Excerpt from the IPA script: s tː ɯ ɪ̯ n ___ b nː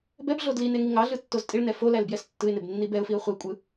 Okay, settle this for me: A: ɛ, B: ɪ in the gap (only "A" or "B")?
B